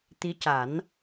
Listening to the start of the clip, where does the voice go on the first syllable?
rising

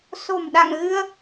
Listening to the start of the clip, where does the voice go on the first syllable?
low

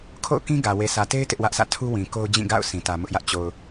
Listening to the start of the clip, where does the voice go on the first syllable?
falling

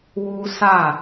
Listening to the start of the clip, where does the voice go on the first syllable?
high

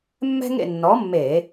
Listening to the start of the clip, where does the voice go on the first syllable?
high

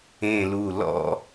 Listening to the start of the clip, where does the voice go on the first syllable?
low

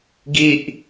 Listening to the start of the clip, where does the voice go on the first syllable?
low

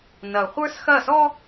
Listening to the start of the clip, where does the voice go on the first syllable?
low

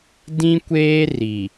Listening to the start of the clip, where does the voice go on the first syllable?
high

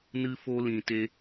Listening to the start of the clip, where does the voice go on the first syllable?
high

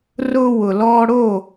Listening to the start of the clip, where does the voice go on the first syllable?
high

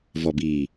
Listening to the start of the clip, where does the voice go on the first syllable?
low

